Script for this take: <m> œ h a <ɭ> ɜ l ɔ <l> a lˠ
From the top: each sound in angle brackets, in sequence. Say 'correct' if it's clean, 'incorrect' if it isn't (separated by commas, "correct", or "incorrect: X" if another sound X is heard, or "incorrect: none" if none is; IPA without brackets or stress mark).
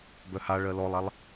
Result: incorrect: b, correct, incorrect: lˠ